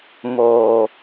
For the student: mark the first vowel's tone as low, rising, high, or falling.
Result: low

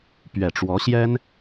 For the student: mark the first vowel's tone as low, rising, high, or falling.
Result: low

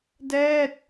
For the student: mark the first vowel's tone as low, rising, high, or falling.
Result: falling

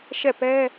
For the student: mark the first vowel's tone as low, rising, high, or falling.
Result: falling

